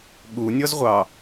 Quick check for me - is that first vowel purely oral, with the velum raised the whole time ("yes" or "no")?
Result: yes